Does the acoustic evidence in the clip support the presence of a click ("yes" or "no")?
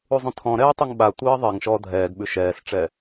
no